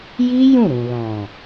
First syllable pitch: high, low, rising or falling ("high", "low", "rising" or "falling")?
high